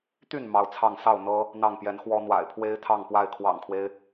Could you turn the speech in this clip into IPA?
t̪ y˥˨ n m ɑ˨˦ ʊ̯ t͡sʰ ɑ˥˨ ŋ s ɑ˥˨ ʊ̯ n̪ ɤ˦ | n̪ ɑ˥˨ ŋ p j ɛ˨˦ n x w ɔ˦ n̪ w a̰˨˩ ɪ̯ pʰ w e˦ ɪ̯ t̪ʰ ɑ˥˨ ŋ p w a˥˨ ɪ̯ kʰ w ɑ̰˨˩ ŋ kʰ w e˦ ɪ̯

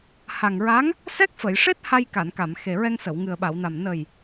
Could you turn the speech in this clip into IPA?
h a˨˩ ŋ ɹ a˧˥ ŋ | s ɛ˦˥ k̚ f ə˨˩˨ j ʂ e˦˥ t̚ h a˧ j k a˨˩˨ n k a˨˩˨ m x e˨˩ ɹ ɛ˧ ŋ s ə˨˩˨ w ŋ ɨ˨˩ ə̯ ɓ a˨˩˨ w n a˨˩ m n ə˨˩ j

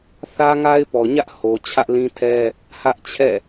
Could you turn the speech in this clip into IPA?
θ ä˦ ŋ a˦ ɪ̯ p ɔ˨ ɲ ä˦ ʔ h o˨ t͡ɕʰ ä˦ ʔ l ĩ˦ tʰ ɛ˦ | h ä˦ ʔ t͡ɕʰ ɛ̰˦˨

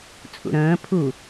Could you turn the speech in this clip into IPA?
t͡sʼ ṵ ɾ ə̃ː pʰ u

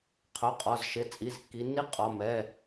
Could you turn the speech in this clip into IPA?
qʰ ʊ˩˧˩ qʼ ɒ˩˧˩ z ʃ ɪ˩˧˩ t͡sʼ i˩˧˩ z kː i˩˧ nː i˦ qʼ ɒ˩˧˩ m ɛ˩˧˩

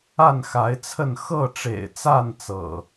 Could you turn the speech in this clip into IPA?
a˥˨ n x a˨˦ ɪ̯ t͡sʰ ə˥˨ n x ɤ˥˨ ʈ͡ʂ ḛ˨˩ ɪ̯ t͡s a˥˨ n t͡s ɤ̰˨˩

